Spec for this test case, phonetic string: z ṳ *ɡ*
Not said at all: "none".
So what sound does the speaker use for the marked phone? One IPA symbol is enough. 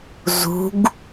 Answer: ɡ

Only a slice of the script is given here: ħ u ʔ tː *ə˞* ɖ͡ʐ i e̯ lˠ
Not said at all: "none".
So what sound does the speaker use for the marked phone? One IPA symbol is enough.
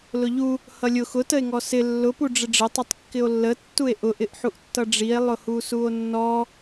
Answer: ʌ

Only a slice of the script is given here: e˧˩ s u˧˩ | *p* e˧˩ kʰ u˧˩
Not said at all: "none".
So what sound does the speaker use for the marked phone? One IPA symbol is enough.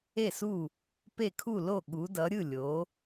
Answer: p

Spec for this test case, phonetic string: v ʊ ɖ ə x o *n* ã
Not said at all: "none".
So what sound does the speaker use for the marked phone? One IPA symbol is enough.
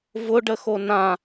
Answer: n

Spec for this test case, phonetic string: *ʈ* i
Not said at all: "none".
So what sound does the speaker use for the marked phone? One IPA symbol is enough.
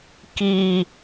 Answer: k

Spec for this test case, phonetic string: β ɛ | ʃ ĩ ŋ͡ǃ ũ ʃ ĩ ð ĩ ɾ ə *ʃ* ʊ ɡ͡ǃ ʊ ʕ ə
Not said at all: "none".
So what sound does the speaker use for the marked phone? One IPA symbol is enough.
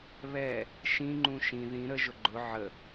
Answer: ʒ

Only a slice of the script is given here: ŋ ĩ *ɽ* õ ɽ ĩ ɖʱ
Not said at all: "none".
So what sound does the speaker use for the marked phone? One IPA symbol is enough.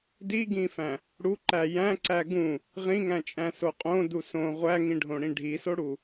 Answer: ɖʱ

